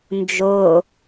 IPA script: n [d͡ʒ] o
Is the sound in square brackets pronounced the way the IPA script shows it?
yes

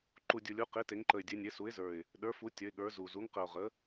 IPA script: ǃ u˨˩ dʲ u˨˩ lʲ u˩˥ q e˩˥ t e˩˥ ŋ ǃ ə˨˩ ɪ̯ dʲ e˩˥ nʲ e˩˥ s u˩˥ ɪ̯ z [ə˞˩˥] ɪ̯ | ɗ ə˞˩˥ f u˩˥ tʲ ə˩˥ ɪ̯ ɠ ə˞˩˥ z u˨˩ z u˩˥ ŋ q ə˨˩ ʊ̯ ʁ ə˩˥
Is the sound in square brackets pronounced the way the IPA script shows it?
no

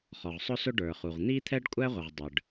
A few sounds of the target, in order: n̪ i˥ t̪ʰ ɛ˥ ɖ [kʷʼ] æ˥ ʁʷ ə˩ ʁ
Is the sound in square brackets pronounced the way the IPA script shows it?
yes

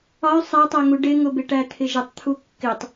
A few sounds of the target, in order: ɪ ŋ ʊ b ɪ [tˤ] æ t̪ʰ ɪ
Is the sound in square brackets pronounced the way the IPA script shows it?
no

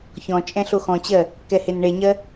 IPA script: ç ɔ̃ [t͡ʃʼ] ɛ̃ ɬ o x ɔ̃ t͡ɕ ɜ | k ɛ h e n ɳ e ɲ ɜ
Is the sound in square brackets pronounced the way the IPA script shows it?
yes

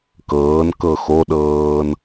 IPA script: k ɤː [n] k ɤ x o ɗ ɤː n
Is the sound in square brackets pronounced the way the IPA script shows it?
yes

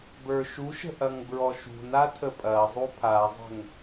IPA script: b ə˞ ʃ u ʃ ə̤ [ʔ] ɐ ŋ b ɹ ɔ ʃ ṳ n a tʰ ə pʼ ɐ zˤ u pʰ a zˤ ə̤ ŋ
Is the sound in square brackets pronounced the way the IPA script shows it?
yes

